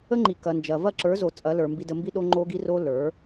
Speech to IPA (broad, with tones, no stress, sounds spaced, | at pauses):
ə˦ ŋ͡ǃ i˨ k ɐ˨ n d͡ʒ ɐ˨ v ɐ˦˨ ǁ ə˞˨˦ z o˨ t͡sʼ ɐ˨˦ l ə˞˨ m b i˧ d ə˧ m b i˦ ɗ o˧ ŋ͡ǃ o˧ ɡ i˧ r o˧ l ə˞˨˦